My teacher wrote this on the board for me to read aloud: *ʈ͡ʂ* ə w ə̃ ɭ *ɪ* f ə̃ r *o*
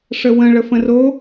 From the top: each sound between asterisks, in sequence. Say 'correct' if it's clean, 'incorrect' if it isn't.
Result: incorrect, incorrect, correct

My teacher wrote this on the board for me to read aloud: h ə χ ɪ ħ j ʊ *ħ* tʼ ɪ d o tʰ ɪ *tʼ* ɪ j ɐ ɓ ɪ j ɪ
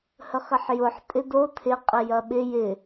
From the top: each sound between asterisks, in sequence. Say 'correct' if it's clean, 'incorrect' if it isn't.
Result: correct, incorrect

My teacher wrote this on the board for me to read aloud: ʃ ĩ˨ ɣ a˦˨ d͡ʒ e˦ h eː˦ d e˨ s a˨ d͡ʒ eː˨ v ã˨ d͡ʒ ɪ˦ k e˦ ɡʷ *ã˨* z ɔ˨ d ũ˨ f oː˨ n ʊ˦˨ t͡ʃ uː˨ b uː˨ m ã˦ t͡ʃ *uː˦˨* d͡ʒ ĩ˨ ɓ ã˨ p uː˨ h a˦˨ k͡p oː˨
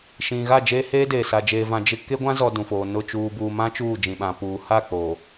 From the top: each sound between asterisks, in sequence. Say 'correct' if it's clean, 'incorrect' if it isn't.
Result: incorrect, correct

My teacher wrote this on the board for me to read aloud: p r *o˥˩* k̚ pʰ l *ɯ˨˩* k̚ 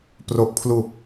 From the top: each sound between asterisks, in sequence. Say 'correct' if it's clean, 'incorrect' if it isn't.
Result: incorrect, incorrect

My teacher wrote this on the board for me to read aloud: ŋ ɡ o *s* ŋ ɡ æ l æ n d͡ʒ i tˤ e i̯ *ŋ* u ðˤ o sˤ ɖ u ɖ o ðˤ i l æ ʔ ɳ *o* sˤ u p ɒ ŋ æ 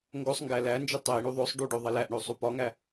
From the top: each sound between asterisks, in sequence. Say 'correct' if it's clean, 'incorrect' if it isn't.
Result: incorrect, incorrect, correct

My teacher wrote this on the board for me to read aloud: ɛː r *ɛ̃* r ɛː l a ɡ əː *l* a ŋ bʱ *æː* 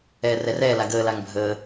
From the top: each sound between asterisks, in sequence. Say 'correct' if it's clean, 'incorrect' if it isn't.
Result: incorrect, correct, incorrect

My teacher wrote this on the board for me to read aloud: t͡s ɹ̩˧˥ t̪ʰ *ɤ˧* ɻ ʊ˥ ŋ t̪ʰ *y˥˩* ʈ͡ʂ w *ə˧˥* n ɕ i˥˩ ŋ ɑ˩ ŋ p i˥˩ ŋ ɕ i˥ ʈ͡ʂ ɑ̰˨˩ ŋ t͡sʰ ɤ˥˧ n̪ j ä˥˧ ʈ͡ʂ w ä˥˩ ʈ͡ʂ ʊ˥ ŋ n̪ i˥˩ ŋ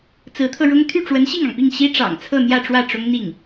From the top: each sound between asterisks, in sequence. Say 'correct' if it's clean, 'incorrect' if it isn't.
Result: correct, correct, correct

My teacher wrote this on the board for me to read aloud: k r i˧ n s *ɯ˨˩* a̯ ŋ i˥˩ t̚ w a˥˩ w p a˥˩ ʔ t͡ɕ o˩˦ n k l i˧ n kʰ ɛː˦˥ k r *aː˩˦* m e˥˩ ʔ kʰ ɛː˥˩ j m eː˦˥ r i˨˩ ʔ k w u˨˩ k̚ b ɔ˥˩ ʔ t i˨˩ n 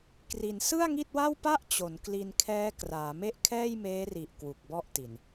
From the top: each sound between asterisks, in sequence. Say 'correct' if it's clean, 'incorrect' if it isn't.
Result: incorrect, correct

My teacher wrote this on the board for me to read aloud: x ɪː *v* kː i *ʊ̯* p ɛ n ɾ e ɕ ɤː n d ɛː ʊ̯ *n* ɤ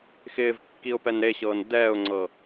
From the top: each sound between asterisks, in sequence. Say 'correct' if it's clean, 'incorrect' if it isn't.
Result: correct, correct, incorrect

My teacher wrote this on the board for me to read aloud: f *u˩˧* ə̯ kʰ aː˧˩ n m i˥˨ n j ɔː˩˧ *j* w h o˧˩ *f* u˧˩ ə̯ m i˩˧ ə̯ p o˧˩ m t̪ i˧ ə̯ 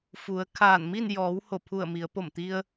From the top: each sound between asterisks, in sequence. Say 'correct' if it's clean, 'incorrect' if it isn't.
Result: correct, incorrect, incorrect

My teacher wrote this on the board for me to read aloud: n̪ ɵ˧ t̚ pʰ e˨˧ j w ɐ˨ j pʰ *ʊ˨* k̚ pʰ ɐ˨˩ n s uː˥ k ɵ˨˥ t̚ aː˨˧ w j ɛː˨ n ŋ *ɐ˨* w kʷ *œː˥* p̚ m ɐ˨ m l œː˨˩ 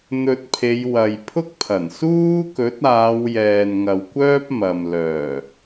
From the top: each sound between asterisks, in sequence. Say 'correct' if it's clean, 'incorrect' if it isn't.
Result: incorrect, correct, correct

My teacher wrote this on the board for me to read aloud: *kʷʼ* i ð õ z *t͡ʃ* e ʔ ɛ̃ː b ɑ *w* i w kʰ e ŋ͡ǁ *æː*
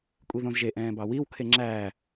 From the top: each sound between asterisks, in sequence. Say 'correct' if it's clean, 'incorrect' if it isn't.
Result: correct, incorrect, correct, correct

